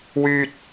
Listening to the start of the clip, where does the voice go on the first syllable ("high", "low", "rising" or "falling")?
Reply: low